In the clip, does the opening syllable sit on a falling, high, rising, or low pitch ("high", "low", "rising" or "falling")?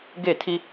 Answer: falling